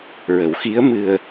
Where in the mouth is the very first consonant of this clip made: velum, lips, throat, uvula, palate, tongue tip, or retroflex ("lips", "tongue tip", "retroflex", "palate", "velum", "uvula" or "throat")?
tongue tip